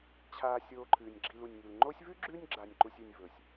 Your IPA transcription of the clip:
t͡ɕʰaː˨ sʲoː˨ǃʰɨː˩nʲ ɡ͡ǁi˨lu˩nʲŋi˩l ŋ͡ǃoː˦sʲvʉ˥ɡ͡ǁʉː˦nʲ ɡ͡ǁa˨nʲ ǃu˨sʲʉ˨nʲ vɵ˩sʲ

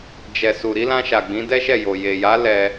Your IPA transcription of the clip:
d͡ʒɛ˨su˨ ɾi˨˦lã˧ʃa˨ɡ͡bĩ˨˦ dɛ˦ʃɛ˦˨jo˨ je˨ja˨˦ lɛ˧

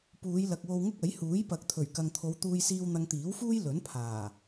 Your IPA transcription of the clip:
puː˨˧jlɐ˨k̚wo˧w ŋʊ˥k̚ɐ˨˥j huː˨˥jpɐ˨˥k̚t̪ʰɵ˨˩ɥkɐ˨ŋ t̪ʰo˨˧wt̪uː˧jsiː˧w n̪ɐ˧ŋt̪iː˨˥wfuː˥j lɵ˨˥npʰaː˨˩

